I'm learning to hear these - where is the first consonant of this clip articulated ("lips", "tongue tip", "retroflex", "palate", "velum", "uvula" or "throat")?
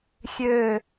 velum